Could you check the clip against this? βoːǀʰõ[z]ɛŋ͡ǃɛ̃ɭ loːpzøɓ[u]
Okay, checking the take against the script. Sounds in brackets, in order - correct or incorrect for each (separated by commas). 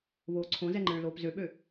correct, incorrect